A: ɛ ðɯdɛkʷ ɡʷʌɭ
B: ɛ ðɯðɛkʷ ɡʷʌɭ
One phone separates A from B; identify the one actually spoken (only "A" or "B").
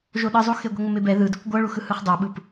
A